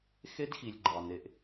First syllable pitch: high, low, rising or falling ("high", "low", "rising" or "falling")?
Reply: high